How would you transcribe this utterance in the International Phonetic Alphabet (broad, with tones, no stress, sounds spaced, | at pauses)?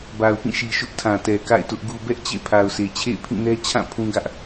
b a˨ ʊ̯ p ĩ˦˨ ʃ i˨ ʃ ʊ˦ ʔ tʰ ã˨ t ɛ˨ k a̰˦˨ ɪ̯ t ʊ˦ ʔ ɡ u˨ b ɛ˦ ʔ t͡ɕ ḛ˦˨ pʰ a˨ ʊ̯ sʰ e˨ t͡ɕʰ ḛ˦˨ ɪ̯ pʰ ĩ˦˨ n ɛ˦ t͡ɕʰ ã˦˨ pʰ ũ˦ ɡ ä˦ ʔ